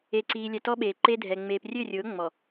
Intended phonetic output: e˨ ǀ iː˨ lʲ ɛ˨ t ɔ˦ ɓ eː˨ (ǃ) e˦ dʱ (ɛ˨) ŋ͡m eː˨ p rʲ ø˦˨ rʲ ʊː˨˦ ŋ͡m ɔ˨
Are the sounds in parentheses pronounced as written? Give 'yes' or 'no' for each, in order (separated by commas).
yes, yes